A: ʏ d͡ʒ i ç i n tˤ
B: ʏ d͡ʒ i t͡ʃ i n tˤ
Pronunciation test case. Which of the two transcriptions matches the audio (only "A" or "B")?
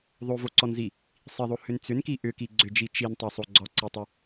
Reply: B